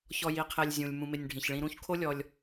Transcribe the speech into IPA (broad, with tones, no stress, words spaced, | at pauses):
çɔ˨ ji˨ qʰe˨lʲzʲũ˩lʲ mũ˨mɪ˨nʲ ɖʱĩ˩ç ɭĩ˨ɾũ˦çkʰo˥ lʲɔ˨lʲ